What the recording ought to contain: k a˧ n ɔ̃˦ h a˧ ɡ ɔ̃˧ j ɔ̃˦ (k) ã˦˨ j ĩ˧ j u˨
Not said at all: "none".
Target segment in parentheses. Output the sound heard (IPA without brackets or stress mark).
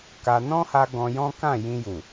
k